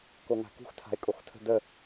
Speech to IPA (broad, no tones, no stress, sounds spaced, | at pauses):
k o ŋ a̤ k ṳ x tʰ a̤ ɪ̯ kʼ o x tʰ ə̤ d ə